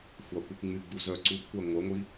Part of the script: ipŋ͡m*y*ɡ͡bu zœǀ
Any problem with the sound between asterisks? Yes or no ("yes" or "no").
no